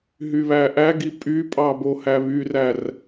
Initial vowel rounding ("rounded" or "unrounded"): rounded